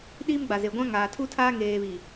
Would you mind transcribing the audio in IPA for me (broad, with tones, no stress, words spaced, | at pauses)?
ɗiː˦mɡ͡ba˨ze˨ ɡʷã˦ŋaː˨tʰu˦tʰaː˦ ŋeː˨βi˨